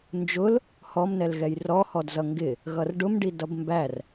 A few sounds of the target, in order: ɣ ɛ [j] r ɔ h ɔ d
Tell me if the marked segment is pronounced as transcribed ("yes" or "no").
yes